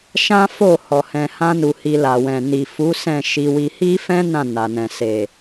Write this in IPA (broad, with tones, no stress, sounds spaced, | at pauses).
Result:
ʃ ã˦ f o˦˨ h ɔ˨ h ɛ̃˨ h ã˧ n u˨ h i˧ l a˨ w ɛ̃˨ n i˨ f u˨˦ s ɛ̃˦˨ ʃ i˧ w i˧ h i˦ f ɛ̃˦ n ã˦˨ n a˨ n ɛ̃˨ s e˨